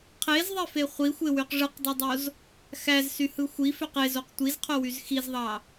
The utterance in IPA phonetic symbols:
qʰ e z ðˤ e f e χʷ i xʷ e w y q ʐ ɯ q dˤ ɯ dˤ o z | x æ z s y h ɯ xʷ i f ø q e z o q tʷ i z qʰ o w y z x i z ðˤ ɑ

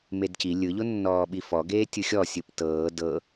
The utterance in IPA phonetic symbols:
m e d c i lʲ ɯ ʎ o nː ɔː ɓ i f ɔ ɡ eː tʲ ɯ xʲ ɔ sʲ ɯ p t ɤː d ɤ

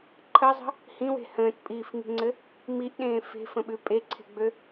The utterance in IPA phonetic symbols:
ǃʰ ə zˤ ə̤ | h ĩ w e̤ h ə̃ː t pʼ iː f ŋ i̤ ŋ͡ǀ ɘ | m i ʔ ɗ ẽː f e̤ f ə̃ ɓ ʉ pʼ e ǀʰ e̤ ɡ͡b ø

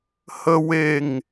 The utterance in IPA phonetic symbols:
h ə˦ w e˦˨ ŋ

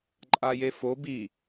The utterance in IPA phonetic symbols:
ǃʼ a j e f o b i

